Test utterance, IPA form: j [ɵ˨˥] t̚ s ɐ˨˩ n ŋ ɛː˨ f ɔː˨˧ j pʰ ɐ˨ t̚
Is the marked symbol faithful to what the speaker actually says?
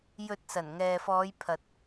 no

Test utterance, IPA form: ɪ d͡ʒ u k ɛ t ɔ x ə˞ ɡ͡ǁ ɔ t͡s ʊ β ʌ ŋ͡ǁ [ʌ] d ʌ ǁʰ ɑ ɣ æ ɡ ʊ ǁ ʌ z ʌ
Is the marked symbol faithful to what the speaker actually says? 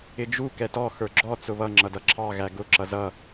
yes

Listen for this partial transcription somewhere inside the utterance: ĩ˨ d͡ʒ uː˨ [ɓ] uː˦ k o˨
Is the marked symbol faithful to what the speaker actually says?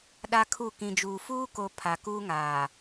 no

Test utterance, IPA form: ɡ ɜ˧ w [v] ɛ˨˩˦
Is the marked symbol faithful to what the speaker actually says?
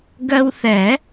no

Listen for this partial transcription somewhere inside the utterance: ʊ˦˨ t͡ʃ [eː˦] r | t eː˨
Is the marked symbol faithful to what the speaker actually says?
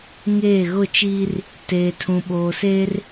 no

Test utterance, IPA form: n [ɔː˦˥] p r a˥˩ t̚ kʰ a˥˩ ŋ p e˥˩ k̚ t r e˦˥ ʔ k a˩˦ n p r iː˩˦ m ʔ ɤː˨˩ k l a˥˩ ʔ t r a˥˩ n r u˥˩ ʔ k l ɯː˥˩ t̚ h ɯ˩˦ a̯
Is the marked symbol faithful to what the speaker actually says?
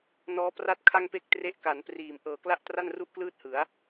yes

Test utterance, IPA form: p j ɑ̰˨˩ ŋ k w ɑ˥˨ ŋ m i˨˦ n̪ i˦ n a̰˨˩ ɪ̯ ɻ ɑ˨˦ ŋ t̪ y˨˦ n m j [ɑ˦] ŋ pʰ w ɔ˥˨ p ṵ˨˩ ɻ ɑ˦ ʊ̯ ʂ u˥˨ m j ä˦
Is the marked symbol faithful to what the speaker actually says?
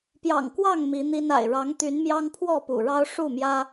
yes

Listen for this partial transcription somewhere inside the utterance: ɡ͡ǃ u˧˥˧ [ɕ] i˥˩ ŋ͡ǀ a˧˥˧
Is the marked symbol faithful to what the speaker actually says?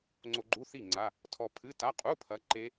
no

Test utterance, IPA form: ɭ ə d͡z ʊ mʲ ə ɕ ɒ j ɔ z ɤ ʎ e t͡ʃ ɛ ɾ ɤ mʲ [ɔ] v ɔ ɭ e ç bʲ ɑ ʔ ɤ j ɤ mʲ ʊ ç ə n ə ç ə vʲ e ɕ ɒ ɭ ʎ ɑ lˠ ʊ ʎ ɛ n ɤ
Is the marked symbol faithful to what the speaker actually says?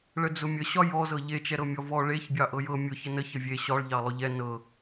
yes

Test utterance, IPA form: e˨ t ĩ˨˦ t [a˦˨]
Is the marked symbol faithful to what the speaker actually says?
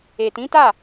yes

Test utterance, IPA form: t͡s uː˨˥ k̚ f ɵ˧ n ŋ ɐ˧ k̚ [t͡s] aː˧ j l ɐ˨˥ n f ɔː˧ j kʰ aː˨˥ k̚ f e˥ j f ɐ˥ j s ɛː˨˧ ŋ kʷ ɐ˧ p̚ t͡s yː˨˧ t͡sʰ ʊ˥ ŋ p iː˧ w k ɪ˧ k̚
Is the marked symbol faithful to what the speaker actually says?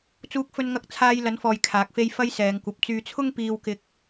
no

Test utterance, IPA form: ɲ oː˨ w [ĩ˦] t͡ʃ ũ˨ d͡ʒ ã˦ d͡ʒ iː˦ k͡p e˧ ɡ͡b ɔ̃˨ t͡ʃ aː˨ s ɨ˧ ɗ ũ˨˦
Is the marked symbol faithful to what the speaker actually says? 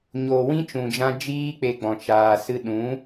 yes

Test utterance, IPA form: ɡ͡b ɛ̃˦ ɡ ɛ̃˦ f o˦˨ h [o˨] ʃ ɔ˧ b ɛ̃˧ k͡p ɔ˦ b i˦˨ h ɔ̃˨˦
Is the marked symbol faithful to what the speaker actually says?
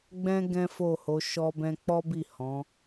no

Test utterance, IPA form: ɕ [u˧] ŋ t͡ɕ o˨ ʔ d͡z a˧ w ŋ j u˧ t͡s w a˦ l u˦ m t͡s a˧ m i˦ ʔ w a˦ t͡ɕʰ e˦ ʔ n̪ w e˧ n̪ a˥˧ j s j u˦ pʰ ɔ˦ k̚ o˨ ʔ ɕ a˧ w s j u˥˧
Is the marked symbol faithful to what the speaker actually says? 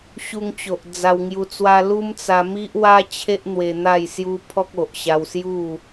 yes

